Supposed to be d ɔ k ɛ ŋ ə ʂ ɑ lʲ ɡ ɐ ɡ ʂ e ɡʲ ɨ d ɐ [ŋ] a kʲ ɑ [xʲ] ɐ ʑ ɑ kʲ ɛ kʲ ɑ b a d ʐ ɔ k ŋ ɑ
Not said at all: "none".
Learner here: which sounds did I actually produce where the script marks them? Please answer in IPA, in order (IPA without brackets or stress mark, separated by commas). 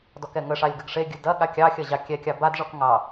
ɠ, xʲ